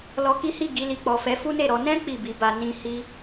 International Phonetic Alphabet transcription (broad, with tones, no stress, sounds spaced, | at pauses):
l ɔ˧ k i˦ h i˦˨ ɡ i˧ l i˨ k͡p ɔ˨ f ɛ˨˦ f u˦ n e˦˨ ɾ ɔ˧ n ɛ̃˦ k͡p i˦˨ b i˨˦ b a˧ n ĩ˦ h i˦